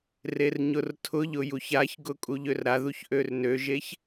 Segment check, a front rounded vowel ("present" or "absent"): present